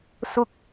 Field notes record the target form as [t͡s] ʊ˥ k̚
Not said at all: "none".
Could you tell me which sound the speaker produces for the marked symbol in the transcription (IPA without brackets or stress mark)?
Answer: s